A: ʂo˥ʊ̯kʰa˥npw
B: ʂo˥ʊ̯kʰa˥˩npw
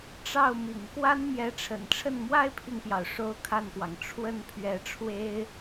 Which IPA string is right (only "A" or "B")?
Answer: B